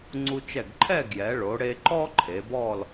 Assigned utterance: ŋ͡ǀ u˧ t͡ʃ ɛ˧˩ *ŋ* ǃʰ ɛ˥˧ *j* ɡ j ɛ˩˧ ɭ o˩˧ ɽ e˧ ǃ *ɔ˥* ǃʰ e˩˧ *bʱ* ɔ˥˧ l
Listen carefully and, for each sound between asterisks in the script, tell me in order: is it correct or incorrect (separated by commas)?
incorrect, incorrect, correct, incorrect